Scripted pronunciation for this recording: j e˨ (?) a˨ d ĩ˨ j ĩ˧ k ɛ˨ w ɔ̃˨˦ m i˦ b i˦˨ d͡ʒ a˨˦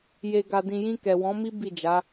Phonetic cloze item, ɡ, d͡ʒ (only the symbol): ɡ